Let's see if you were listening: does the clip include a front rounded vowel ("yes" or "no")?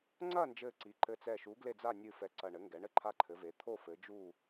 no